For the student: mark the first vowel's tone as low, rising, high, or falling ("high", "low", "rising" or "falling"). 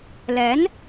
rising